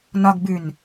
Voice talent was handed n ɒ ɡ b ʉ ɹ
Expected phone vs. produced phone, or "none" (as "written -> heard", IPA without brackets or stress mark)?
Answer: ɹ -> n